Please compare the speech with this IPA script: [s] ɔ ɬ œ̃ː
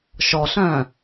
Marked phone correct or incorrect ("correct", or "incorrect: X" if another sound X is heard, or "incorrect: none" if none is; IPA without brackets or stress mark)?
incorrect: ʃ